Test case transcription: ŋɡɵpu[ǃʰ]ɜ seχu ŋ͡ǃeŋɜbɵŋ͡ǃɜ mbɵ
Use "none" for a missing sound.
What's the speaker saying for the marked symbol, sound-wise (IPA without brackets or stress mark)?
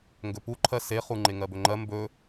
ǃʰ